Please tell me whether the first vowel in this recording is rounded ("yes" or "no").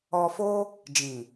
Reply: yes